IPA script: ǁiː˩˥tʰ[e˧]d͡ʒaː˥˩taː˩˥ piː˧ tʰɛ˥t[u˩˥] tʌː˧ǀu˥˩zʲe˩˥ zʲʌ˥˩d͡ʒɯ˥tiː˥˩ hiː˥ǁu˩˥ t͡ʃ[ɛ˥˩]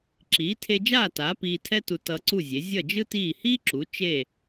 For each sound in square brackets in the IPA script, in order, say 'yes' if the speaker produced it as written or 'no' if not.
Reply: yes, no, no

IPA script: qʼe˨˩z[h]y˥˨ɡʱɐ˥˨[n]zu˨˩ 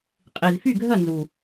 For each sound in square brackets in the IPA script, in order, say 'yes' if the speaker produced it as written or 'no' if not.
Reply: no, yes

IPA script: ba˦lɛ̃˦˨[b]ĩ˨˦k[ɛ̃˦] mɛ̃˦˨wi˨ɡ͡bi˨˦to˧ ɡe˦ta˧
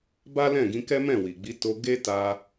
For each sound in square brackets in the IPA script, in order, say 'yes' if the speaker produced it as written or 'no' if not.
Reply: no, no

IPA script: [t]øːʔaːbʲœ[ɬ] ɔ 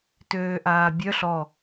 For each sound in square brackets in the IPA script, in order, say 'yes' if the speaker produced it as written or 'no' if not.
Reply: yes, yes

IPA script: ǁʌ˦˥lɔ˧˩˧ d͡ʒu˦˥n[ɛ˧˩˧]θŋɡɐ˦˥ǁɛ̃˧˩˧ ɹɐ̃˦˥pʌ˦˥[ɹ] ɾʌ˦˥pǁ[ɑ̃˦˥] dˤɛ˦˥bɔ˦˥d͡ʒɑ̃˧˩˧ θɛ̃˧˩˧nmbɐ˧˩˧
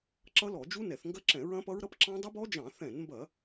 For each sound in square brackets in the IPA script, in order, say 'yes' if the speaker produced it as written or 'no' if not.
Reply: yes, yes, yes

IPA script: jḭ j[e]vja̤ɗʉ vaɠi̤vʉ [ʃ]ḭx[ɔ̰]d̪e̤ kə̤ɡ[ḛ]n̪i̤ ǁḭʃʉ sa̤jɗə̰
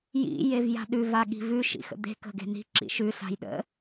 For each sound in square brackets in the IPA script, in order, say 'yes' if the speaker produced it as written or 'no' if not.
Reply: yes, yes, no, no

